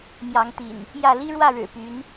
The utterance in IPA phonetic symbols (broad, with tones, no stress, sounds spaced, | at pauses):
m j ɑ˨˦ ŋ t̪ ḭ˨˩ n | j ä˥˨ l i˦ ɻ w ä˥˨ ɻ ɻ̩˨˩ p y˨˦ n